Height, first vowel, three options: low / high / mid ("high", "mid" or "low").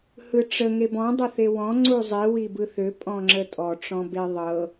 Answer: high